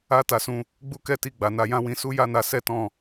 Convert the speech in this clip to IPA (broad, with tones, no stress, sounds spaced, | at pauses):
a˦ t a˧ s ũ˧ | ɡ͡b u˦ k ɛ˦ t i˧ ɡ͡b a˨ n a˧ j ã˦ w ĩ˧ s u˦ j a˦ n a˧ s ɛ˦ t ɔ̃˦˨